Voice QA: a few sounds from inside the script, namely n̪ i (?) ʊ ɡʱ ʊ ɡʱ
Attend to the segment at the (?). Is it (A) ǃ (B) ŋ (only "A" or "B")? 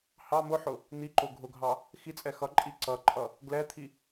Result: A